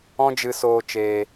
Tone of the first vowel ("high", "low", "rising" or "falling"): high